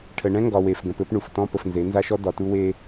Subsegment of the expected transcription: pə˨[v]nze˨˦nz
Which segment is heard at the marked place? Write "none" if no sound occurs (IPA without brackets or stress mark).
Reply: f